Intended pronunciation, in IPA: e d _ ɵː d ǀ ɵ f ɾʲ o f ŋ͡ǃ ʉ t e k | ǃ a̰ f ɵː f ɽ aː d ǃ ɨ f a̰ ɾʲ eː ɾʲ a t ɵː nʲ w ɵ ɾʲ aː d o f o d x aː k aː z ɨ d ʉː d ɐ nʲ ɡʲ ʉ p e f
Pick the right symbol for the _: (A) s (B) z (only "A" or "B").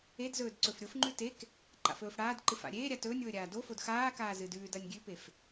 B